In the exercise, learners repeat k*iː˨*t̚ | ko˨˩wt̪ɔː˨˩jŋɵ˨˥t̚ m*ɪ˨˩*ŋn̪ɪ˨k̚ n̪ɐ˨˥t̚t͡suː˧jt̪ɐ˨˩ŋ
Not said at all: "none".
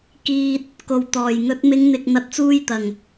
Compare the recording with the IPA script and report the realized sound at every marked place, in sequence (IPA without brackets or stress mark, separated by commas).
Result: iː˨, ɪ˨˧